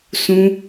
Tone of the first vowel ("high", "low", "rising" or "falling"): high